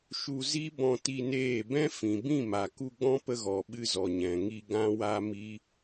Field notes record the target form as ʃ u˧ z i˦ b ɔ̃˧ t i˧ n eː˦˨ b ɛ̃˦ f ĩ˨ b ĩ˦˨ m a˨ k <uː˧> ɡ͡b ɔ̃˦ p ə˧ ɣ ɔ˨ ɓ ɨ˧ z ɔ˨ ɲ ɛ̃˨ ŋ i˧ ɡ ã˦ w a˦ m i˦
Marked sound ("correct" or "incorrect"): incorrect